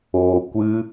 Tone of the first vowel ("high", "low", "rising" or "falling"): low